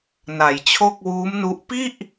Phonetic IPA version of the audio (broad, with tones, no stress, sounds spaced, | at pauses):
n a˩˦ j t͡ɕʰ o˥˩ k̚ w uː˦˥ m n u˦˥ ʔ p i˥˩ ʔ